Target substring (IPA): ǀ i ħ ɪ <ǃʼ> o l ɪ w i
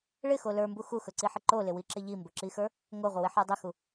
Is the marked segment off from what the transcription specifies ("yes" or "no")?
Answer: yes